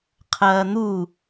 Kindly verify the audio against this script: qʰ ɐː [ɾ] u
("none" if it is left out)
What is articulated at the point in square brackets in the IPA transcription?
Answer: n̪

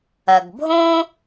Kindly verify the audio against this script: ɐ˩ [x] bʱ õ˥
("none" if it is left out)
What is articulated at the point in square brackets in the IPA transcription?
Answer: ɡ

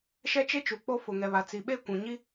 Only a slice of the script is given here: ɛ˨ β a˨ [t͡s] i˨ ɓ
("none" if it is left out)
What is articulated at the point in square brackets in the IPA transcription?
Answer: t͡s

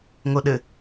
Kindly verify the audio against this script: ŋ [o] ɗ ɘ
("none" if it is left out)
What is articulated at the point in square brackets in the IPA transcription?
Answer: o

